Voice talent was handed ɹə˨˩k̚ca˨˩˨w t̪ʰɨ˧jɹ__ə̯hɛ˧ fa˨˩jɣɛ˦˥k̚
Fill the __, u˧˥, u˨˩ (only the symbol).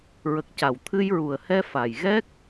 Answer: u˨˩